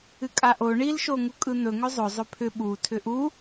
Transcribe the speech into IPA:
ɨkʼaʔo ɳilʃo ŋukʼɯn̪ɵŋʏ zˤɵ zˤɵpʰʏ ɓu tʰʏʔu

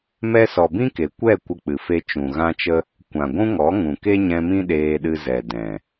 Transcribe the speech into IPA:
mɛ˧sɔ˨ bĩ˦ke˨ kʷɛ˦˨ kʷə˧k͡pɨ˨fe˧ t͡ʃũ˨ɣã˦t͡ʃə˦ | kʷã˨ɡʷũ˦ŋɔ˨˦ ŋũ˨ke˦ɲɛ̃˧mĩ˦ ɗeː˦ɗɨ˦ zɛ˨ dɛ̃˨

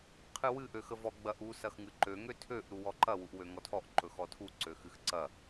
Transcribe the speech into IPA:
qʰɨwɨ ʔøxəvɔ ɡ͡bɐʔ u sɐxŋɨǃø ŋøtʰøʔ ɾuwɔǃɐ wuʔwøŋɔtʰɔʔ ǃɵxɔtʰu ǀøxɨxǀɐ

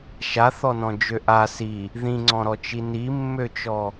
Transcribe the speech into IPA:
ʃaθɔnɔ̃d͡ʒø ʔa si | ðĩŋ͡ǀɔ̃ɾɔt͡ʃi nimːøt͡ʃɔ

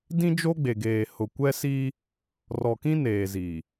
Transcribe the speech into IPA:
dĩ˦d͡ʒo˦ɡ͡be˨ɡeː˨ hʊ˨kʷɛ˦si˦ | rɔ˨kĩ˦ neː˨zi˨

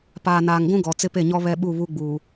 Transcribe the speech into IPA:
paː˨naː˨ŋɡʷũ˦ ɡɔ˨ t͡sɪ˦pe˦˨ɲɔ˦ βɛ˦ɓu˦˨ βu˦ɡ͡buː˨

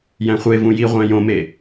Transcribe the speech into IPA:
jæ̃χʷevũ jiʁʷæ̃ jõme

